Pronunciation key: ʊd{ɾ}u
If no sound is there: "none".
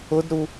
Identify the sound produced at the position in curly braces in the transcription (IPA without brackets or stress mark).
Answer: ɾ